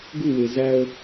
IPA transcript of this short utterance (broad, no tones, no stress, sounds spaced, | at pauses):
ɡ u w e z æ ə̯